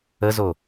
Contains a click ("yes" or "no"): no